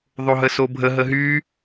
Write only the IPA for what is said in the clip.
ðˤoɦəsobʱə ɦəɦy

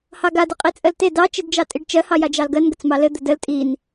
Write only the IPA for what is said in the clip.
hɑɡad ɘqʼit͡sʼɜlte dɑ t͡ʃidd͡ʒɑtʼiɖt͡ʃɜ hɑjad͡ʒɑlɡɜn ɡət͡smɑlɘ d̪ədəl tʼin

